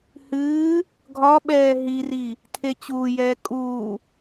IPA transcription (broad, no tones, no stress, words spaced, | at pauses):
hɨː | ɡʱɒ ɓɛːɦiri | tʰet͡ɕuːjɛː kʼuː